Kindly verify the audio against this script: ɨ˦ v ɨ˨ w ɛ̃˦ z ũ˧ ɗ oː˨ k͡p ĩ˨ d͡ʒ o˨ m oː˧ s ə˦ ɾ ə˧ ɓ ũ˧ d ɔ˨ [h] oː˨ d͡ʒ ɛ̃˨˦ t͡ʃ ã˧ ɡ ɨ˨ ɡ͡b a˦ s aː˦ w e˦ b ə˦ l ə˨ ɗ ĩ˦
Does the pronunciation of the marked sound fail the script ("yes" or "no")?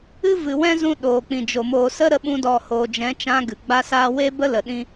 no